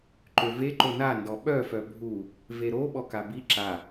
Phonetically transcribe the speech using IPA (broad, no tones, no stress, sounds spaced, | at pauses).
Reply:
ǃ ø v e ǃ o n a n d ɔ ɓ œ f œ bʱ u | v e ɾ o ɓ ɔ k a b i ǁ a